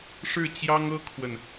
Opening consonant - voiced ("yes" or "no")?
no